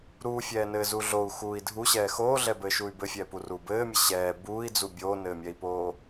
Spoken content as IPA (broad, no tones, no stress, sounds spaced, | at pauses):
ɾ uː fʲ ɛː n ɘː z u ɮ o u̯ x uː i̯ dʱ u ɕ ɛː x oː ɮ ɛ b ɘː ʃ u y̯ b ɘ fʲ ɛː p u r uː b ɘː mʲ ɘ ɕ ɛː b uː i̯ d͡z u bʲ oː n ɘː mʲ ɛ i̯ p oː